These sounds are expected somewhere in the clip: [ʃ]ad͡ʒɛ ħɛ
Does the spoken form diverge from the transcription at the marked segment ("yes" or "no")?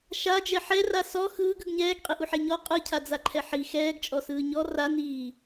no